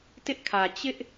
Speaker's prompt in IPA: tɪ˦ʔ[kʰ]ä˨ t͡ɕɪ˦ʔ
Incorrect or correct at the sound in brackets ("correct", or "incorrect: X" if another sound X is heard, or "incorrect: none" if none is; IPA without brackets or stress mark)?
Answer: correct